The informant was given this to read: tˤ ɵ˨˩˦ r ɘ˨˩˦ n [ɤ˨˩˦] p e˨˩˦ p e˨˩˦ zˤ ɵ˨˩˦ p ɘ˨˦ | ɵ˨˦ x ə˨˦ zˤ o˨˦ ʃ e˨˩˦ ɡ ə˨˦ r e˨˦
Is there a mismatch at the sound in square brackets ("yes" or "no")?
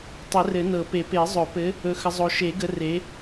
no